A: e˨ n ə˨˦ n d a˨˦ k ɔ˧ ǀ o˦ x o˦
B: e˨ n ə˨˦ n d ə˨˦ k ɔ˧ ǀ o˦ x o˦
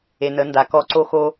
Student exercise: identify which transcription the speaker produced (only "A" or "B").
A